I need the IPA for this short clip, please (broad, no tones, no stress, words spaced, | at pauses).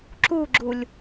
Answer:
ǁuɡ͡ǁulʲ